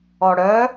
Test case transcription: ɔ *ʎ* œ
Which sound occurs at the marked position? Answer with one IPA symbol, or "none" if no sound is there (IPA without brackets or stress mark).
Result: ɽ